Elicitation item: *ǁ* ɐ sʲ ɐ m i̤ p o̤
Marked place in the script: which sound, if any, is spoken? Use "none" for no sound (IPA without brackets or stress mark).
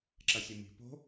ǁ